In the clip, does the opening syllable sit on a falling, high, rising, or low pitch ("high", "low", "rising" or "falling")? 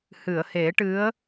low